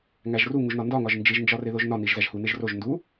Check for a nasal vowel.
absent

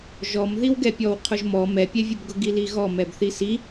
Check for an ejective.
absent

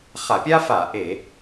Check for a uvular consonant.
present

